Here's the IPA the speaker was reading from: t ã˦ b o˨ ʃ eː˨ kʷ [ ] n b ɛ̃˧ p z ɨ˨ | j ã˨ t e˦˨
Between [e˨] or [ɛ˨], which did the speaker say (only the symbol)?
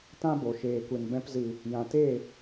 e˨